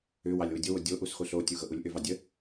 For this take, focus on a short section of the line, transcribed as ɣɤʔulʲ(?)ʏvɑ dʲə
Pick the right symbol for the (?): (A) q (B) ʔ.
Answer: B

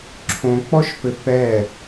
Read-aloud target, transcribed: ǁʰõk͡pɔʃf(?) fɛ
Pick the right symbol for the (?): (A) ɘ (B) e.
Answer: A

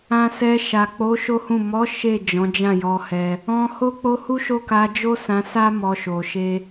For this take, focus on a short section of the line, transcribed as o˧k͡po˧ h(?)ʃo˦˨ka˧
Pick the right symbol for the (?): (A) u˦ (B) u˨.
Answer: A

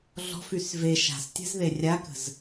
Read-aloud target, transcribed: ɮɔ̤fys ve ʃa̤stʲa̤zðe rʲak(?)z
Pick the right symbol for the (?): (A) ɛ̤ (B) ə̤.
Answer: B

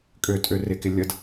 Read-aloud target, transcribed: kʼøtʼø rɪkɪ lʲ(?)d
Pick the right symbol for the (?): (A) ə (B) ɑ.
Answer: A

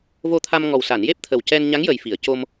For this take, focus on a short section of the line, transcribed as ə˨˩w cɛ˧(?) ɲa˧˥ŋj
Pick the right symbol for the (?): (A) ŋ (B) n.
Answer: B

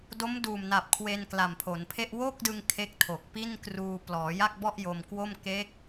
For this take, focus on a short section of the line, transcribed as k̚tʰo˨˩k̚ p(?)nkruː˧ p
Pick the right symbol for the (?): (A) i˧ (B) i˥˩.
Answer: B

